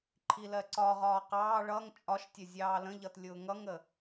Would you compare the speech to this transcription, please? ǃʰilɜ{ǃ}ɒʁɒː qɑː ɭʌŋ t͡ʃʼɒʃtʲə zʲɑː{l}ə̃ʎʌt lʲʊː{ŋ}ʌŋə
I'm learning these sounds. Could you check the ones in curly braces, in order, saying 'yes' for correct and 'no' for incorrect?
no, yes, yes

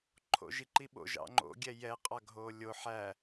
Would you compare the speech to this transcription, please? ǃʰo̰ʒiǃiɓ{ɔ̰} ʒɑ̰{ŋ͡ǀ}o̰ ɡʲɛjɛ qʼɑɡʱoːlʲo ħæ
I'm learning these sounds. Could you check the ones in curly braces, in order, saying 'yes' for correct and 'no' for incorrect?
no, no

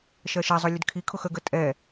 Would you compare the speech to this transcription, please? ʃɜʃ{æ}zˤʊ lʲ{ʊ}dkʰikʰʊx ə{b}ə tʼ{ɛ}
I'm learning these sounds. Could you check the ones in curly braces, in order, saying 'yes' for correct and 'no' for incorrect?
no, no, no, yes

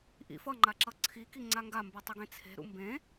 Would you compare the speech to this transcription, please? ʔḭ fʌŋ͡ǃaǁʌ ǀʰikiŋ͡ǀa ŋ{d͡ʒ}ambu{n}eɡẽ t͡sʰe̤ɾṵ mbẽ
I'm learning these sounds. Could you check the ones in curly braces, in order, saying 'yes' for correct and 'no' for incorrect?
no, no

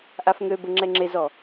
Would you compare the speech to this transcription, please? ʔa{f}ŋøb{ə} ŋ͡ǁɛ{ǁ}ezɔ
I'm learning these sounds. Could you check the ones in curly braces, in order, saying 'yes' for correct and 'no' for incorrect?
yes, yes, no

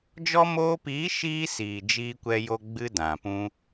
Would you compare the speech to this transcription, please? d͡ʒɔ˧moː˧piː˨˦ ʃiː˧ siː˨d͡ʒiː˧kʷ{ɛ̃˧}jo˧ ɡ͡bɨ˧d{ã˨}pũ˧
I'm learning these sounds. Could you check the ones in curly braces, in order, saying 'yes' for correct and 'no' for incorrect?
no, yes

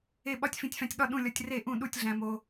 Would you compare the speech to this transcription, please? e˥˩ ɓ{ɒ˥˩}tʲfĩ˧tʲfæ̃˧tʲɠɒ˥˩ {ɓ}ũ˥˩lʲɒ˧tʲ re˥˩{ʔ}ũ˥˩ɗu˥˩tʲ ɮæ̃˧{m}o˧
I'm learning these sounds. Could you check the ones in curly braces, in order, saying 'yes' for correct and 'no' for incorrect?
yes, no, yes, yes

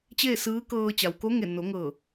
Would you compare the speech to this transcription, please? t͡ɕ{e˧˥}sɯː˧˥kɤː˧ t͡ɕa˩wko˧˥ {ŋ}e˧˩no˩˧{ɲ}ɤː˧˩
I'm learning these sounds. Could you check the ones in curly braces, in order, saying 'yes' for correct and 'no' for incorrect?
no, yes, no

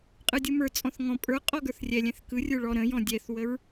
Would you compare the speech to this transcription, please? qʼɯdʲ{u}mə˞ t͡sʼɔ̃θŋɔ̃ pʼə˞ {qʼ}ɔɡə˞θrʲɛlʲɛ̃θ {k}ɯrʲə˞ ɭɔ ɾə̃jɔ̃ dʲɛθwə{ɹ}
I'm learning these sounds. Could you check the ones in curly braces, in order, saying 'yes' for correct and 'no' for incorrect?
no, yes, yes, yes

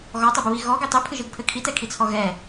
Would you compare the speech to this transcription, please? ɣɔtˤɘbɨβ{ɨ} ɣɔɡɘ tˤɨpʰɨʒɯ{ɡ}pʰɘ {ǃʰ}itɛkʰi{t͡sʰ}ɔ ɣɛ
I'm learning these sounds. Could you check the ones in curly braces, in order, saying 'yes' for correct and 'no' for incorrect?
no, yes, no, yes

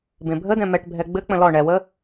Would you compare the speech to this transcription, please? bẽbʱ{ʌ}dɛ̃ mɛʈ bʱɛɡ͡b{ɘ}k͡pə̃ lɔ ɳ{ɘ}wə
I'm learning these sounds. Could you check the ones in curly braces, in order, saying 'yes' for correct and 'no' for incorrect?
no, yes, no

